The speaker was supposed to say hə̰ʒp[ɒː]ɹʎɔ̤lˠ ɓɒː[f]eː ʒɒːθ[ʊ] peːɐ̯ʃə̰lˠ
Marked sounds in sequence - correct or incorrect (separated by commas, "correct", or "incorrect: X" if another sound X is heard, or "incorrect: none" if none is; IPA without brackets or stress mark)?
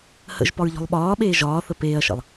incorrect: ɒ, incorrect: ɓ, incorrect: ə